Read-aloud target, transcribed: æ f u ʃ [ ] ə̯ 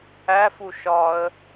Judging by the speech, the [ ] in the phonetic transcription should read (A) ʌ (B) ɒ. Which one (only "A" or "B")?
B